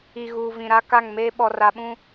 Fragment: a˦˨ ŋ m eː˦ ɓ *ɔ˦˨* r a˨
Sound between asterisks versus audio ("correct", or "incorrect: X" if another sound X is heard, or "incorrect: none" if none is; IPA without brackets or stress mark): incorrect: ɔ˨